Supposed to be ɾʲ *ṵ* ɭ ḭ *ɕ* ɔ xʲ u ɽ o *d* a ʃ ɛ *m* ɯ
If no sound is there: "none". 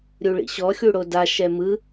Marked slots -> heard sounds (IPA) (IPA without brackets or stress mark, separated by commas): u, ɕ, d, m